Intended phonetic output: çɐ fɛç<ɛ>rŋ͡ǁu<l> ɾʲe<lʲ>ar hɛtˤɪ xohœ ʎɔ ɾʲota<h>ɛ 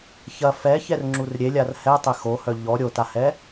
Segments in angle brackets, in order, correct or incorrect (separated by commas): correct, incorrect, correct, correct